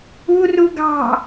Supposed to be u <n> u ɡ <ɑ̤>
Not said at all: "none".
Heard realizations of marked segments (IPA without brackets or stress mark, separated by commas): r, ɑ̤